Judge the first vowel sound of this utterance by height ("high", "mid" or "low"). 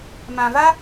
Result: low